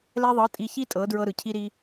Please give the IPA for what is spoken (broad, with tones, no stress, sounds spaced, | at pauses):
l ɛ˧ ðˤ ɤ˨˦ tʼ i˧ ç i˦ tʼ ɤ˨˦ d ɹ ɤ˧ ɾ ɯ˨ cʰ i˧ ɾ i˧